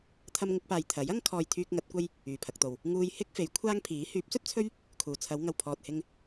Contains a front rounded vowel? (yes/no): yes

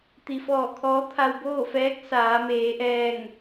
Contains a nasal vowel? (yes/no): no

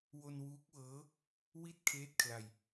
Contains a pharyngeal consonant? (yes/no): no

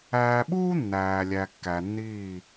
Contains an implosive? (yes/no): yes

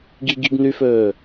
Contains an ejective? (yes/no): no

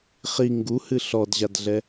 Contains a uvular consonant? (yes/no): yes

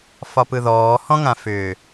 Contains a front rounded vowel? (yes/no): yes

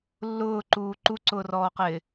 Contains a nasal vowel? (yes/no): no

